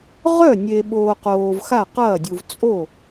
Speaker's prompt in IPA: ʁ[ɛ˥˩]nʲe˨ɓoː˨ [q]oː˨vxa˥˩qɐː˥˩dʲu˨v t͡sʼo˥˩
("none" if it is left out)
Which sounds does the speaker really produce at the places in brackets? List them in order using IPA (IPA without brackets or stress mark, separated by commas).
œ˥˩, q